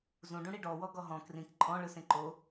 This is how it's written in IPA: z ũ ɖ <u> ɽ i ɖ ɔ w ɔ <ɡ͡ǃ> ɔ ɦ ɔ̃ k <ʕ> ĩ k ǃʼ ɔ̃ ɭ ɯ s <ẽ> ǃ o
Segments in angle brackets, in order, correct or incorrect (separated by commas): incorrect, incorrect, incorrect, correct